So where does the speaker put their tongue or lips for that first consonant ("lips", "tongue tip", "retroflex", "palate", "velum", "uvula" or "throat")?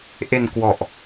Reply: throat